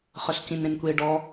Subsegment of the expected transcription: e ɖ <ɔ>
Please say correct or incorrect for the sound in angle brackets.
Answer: correct